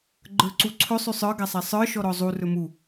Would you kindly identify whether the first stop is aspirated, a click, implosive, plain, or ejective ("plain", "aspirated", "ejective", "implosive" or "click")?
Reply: click